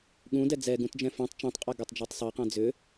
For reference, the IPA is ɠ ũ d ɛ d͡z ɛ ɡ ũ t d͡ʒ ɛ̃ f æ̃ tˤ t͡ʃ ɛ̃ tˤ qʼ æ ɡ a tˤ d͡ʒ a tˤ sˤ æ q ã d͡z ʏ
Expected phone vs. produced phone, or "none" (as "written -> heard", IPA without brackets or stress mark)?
none